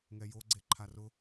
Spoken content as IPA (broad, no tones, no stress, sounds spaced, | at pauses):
ŋ ɛ j o ɡ͡ǀ e ǃʰ a r ʊ